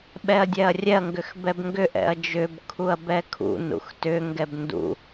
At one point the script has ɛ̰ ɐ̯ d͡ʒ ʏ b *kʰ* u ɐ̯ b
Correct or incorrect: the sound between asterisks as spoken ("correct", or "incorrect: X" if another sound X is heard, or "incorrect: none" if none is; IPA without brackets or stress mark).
correct